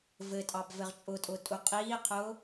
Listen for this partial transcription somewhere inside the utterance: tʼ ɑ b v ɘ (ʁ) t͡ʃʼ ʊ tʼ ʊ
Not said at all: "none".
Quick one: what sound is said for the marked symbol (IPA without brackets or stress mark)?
ʁ